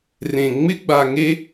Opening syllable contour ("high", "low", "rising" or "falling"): low